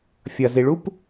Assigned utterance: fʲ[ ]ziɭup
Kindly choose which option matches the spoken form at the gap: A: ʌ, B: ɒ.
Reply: A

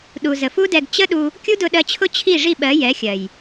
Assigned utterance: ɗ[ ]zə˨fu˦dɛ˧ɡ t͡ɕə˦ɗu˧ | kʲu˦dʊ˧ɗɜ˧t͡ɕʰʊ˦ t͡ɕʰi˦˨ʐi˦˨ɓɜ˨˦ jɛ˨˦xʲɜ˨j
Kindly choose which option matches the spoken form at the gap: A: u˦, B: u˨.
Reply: B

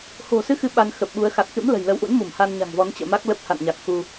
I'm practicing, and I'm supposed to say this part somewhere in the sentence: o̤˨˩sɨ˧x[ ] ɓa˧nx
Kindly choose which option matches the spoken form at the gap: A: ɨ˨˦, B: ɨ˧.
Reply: A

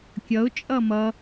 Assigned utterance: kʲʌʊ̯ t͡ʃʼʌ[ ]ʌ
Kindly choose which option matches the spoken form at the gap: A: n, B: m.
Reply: B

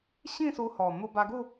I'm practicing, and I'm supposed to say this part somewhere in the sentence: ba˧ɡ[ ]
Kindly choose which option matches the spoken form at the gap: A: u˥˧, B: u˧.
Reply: A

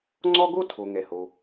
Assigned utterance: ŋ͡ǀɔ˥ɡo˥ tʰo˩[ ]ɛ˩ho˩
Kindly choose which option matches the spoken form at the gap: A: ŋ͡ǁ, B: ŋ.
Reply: B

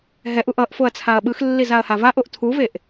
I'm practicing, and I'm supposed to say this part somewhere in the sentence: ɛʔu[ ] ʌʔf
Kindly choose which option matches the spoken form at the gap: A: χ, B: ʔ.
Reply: B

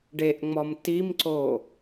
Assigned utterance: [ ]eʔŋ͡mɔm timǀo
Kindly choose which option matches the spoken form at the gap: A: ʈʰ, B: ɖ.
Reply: B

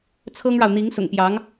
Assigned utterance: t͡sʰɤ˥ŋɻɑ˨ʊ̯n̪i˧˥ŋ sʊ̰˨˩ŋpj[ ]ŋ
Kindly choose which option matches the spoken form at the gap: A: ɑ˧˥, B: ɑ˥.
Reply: A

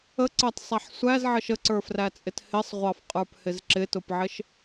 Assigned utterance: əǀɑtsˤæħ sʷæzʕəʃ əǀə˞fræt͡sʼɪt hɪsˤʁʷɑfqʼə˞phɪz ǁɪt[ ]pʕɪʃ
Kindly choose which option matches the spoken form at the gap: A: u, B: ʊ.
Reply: B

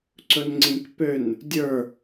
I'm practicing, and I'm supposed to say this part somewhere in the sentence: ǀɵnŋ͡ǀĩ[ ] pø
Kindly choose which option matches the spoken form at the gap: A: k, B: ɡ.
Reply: A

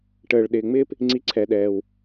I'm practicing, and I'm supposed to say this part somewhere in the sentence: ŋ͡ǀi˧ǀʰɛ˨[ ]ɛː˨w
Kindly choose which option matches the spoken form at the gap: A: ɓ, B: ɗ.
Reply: B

